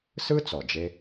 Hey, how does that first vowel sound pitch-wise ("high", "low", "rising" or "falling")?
high